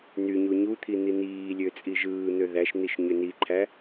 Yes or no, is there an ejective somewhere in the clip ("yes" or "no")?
yes